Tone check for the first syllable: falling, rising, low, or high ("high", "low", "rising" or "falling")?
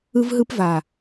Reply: high